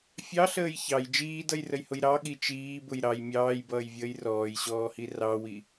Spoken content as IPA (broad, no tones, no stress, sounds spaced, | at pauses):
fʲ ɑ ɬ əː j ç ɑ j d͡ʒ iː d ʌ j r ə j h ʊ j ɾ ɑ ɠ i t͡ʃ iː b ʊ j ɾ ɑ j mʲ ɑː j b ʌː j vʲ əː j r ɔː j ɕ ɔː h i r ɑ w i